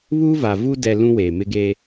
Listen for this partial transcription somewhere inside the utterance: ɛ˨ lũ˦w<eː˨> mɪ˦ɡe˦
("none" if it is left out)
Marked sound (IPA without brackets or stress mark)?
eː˨